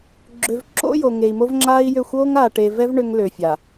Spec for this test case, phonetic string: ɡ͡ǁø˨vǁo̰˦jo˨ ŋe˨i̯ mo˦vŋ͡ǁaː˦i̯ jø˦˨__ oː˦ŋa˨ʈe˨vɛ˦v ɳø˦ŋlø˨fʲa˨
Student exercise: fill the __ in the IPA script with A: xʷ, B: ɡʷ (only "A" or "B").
A